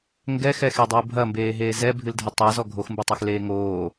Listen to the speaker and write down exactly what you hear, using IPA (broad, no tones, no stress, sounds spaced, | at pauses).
ŋ ɡ ɛ x ɛ x e dˤ uː bʱ ɐ m b eː ɦ eː z ɛ bʱ ɨ l dʱ ɘ tˤ a z ɔ ɡʱ o x m b ɨ tˤ ɘ x l eː ŋ oː